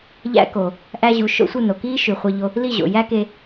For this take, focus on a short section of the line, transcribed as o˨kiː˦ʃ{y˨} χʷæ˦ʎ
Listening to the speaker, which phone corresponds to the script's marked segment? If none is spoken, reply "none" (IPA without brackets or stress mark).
y˨